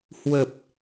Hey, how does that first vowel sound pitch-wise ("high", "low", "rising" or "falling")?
low